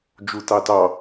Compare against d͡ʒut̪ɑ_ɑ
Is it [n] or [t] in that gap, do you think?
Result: t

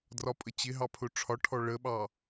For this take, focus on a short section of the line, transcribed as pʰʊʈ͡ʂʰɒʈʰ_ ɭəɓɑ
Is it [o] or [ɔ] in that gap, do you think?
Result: ɔ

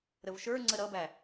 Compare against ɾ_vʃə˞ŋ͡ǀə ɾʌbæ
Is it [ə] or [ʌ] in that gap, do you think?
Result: ə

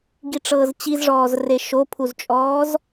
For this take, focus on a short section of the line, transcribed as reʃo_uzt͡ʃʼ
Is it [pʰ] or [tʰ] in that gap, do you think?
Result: pʰ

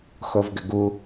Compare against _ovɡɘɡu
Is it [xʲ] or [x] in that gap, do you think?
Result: x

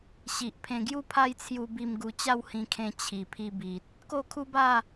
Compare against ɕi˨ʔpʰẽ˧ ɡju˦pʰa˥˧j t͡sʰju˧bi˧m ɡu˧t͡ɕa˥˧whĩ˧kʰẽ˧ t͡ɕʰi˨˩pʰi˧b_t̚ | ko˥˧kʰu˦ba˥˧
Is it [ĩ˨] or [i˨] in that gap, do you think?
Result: i˨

